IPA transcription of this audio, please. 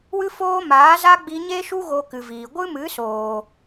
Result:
w ɨ˦ f oː˦ m aː˨˦ z a˦ ɡ͡b i˧ ɲ e˦ ʃ u˦ ɣ o˧ k ɨ˨ v iː˨ ɡʷ ɨ˦ m ɨ˨˦ s oː˨

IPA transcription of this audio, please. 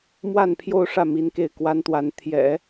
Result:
m w a˥˧ n pʰ j o˥˧ ʊ̯ ʂ ä˥˩ m i˧˥ n k e˥˩ ɪ̯ k w a˥ n t̪ w a˧˥ n t̪ʰ j ɛ̰˨˩˦

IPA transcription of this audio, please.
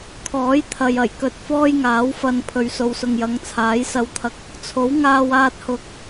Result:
kʰ ɔː˨˥ j t̪ʰ ɐ˨ j ɐ˨˩ j k ɵ˨ t̚ f ɔː˥ j ŋ aː˨˥ w f ɐ˧ n pʰ ɵ˨ ɥ s o˨ w s ʊ˨ ŋ j ɐ˨˧ ŋ t͡sʰ aː˨˥ j s ɐ˧ w t̪ʰ ɐ˧ k̚ | t͡sʰ o˨˥ w ŋ aː˧ w aː˧ t̚ h ʊ˧ k̚

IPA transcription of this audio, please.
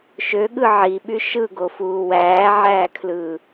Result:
ʃ ø ɠ ɯ ʕ i ɓ y ʃ ɯ ɡ o f uː w æː ʕ æː kʰ l ɯː

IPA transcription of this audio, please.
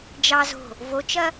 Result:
d͡ʒ ɑ z o̤ | v o t͡ʃ ɐ

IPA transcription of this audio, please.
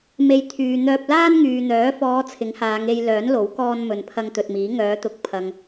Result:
m e˨ j t̪ʰ yː˨ n̪ œː˧ p̚ l aː˥ n ŋ yː˨ n̪ œː˨˥ f ɔː˨˧ t͡sʰ ɪ˨˥ ŋ h aː˨˧ ŋ e˧ j l œː˨˥ n l o˨˥ w k ɔː˧ n m ɵ˨ n pʰ ɐ˧ ŋ t̪ ɵ˨ t̚ m iː˨˥ ŋ œː˨˧ t̪ ʊ˨˥ k̚ pʰ ɐ˨ ŋ

